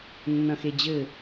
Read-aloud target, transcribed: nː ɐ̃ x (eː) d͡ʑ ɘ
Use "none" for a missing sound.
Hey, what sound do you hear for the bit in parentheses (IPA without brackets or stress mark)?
e